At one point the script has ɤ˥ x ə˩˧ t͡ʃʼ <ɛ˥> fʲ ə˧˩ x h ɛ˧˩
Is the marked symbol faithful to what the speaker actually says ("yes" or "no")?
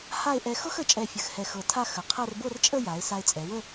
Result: no